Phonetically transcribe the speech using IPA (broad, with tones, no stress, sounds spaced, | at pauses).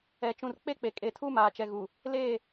ɛ˨ t͡ʃ ũ˨ r k͡p e˦ k͡p e˨ kʼ e˨ tʰ u˦ m aː˨ t͡ʃ ɛ˨ ɣ u˨ | l eː˦˨